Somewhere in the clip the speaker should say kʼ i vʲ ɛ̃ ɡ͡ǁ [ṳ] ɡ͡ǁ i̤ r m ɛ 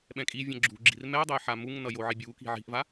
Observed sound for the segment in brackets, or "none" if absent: ṳ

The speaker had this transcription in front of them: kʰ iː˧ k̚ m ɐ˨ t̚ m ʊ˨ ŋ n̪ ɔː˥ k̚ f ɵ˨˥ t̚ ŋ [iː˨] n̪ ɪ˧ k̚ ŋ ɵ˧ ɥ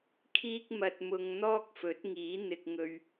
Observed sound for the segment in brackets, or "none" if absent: iː˨˥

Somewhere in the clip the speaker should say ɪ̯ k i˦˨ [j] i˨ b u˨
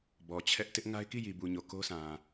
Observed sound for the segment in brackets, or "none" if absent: j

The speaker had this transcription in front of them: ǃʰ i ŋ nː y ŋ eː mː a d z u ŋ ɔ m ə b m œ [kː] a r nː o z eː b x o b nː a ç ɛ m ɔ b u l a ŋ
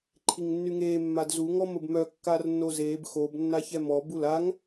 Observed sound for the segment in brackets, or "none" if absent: kː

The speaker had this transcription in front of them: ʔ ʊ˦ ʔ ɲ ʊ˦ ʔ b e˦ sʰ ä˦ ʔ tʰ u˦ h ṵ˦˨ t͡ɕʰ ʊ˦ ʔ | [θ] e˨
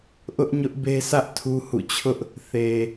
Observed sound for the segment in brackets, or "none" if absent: θ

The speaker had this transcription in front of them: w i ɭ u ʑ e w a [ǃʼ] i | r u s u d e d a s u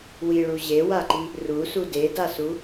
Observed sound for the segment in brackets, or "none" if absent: ǃ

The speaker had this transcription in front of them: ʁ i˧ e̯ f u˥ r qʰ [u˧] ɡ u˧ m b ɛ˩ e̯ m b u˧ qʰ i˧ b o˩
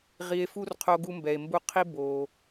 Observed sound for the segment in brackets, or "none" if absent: o˧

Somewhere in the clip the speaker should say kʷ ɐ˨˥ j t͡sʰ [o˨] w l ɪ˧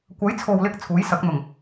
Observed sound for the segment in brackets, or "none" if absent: o˨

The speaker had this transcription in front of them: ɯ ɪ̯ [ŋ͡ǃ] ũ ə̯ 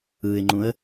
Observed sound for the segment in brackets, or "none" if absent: ŋ͡ǃ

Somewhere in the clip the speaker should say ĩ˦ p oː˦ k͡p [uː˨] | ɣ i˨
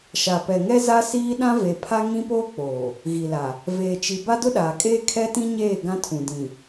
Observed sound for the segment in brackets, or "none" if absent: oː˨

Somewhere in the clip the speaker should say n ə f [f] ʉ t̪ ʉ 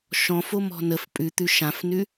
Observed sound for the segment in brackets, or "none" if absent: pʼ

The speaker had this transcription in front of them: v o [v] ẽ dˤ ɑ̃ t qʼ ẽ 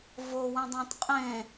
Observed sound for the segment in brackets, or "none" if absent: w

